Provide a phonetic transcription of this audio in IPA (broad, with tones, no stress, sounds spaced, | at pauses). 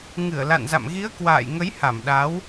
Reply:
ŋ ɨ˧˩ ə̯ l a̰˧˨ n z a̰˧˨ m ɣ i˨˦ ə̯ k w a̰ː˧˨ j ŋ ə˨˦ j h a˧˩ m ɗ a˨˦ w